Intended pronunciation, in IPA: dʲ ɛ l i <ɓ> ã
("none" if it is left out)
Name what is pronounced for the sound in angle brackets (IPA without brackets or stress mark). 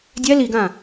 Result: ɡ